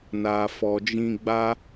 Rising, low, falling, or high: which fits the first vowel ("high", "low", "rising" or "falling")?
low